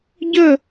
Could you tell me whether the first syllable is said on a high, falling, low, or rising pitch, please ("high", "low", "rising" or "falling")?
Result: falling